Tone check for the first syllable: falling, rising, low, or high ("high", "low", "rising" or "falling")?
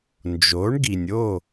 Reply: rising